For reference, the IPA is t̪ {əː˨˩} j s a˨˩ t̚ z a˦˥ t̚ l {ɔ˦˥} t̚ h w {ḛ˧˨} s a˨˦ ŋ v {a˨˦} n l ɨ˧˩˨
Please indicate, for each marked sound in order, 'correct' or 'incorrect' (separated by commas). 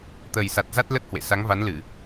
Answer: correct, incorrect, correct, correct